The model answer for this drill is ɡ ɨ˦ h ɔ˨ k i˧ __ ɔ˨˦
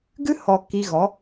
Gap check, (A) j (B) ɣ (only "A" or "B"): B